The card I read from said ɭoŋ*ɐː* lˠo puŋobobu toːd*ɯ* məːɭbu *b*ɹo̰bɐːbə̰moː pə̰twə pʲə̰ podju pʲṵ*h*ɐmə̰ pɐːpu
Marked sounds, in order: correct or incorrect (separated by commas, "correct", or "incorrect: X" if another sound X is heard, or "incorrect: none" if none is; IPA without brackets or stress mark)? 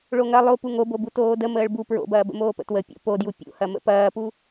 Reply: incorrect: ɐ, incorrect: ə, incorrect: p, correct